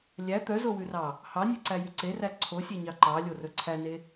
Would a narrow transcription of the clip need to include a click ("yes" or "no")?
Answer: yes